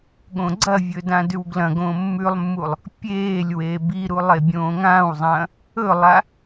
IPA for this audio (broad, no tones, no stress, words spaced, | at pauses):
ɠõɡ͡ǀɐvʲɵ dãdʉwɡlɐ̃ɡõː mːʉlˠmːulˠ | pʲeːlʲ weːbiɾu lˠebʲõːŋãːwzˤɐ̃ː | ɵlˠa